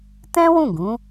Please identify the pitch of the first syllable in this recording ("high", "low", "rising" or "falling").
high